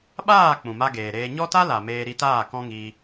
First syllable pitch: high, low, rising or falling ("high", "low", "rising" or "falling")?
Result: falling